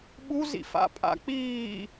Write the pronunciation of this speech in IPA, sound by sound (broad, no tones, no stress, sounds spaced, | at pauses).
ɓ u z ḭ f a̰ pʼ a̰ k͡p iː